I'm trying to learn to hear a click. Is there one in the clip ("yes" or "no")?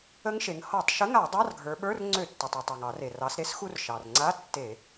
yes